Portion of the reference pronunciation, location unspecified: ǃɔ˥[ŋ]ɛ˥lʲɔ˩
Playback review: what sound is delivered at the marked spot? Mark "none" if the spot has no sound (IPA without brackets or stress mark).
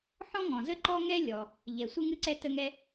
ŋ